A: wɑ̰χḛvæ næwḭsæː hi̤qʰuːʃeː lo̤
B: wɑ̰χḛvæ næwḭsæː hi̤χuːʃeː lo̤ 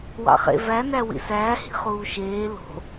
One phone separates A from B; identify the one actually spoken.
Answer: B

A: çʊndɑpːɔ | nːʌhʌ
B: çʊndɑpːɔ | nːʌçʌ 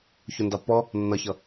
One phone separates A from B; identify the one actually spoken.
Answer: B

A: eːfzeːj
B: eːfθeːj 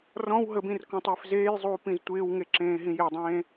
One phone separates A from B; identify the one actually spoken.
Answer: A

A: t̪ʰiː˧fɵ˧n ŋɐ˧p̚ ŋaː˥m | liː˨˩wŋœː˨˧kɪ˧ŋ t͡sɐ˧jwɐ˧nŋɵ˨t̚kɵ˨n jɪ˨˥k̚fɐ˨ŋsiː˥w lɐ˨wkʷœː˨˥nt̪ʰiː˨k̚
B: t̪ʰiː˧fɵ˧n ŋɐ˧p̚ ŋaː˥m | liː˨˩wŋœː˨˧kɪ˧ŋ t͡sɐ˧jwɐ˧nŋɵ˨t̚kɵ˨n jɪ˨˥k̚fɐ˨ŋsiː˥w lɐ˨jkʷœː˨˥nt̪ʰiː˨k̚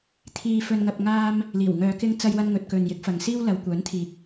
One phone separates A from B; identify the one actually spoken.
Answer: A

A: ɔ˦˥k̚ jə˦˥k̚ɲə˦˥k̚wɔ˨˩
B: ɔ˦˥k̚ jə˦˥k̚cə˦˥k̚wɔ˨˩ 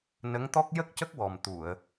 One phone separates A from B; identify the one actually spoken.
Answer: B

